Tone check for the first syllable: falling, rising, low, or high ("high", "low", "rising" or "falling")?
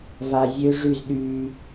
low